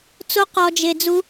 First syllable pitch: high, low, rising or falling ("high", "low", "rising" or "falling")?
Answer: high